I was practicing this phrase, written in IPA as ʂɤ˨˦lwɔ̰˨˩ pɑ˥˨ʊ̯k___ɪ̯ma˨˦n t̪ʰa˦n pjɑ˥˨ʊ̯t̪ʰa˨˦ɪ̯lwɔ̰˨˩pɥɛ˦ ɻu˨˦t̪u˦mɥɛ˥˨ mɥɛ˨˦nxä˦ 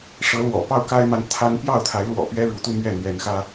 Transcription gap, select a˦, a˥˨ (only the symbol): a˦